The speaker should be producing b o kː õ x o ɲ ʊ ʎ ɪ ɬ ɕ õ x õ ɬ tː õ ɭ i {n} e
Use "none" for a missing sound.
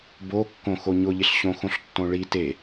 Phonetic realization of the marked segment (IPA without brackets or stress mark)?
t